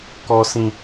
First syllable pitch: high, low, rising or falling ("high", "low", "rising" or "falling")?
high